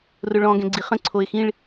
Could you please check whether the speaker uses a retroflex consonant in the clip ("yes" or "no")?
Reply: yes